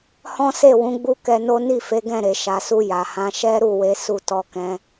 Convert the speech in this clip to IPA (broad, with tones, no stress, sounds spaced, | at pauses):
h ɔ̃˦ s e˦˨ w ũ˨˦ ɡ͡b u˦ k ɛ˧ n o˦ n i˦˨ f e˨˦ ɡ ɛ̃˦˨ ɾ e˨ ʃ a˨ s u˧ j a˨ h ã˨˦ ʃ ɛ˦ ɾ u˦˨ w e˨˦ s u˦˨ t ɔ˧ k ɛ̃˧